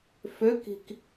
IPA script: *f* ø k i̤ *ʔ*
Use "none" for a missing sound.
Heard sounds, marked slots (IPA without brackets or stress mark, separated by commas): f, k